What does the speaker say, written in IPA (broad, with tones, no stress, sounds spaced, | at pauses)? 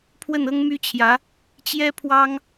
pʰ w ə˥˩ n ɤ˥ ŋ m y˥ t͡ɕʰ j ä˧˥ | t͡ɕ j ɛ˥ pʰ w ɑ˥ ŋ